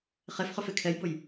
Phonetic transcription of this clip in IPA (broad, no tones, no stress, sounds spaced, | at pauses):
χ e f χ ɵ f e kʰ ɛ j b ʊ j